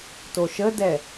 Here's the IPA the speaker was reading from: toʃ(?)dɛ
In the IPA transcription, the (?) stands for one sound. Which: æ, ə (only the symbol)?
ə